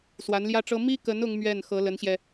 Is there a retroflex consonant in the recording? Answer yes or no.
yes